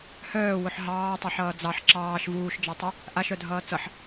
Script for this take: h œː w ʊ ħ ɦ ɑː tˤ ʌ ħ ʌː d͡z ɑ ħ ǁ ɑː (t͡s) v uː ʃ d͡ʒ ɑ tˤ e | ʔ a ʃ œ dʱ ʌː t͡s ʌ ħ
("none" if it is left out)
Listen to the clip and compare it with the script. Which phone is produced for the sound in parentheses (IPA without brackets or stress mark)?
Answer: ʃ